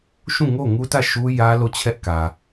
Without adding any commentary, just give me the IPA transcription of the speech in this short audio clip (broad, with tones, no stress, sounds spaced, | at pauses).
ʃ ũ˦˨ ŋ o˦˨ ŋ u˦ t ä˦˨ ʃ u˦ j ä˦ l o˦˨ t͡ɕʰ ɛ˦ ʔ k ä˨